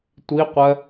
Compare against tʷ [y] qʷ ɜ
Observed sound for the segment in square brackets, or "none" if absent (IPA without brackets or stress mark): i